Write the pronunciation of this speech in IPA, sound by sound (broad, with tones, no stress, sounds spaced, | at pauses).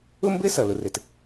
ʊ˥ m b ɘ˥ s ʌ˩ l ʊ˩ r ɘ˩ t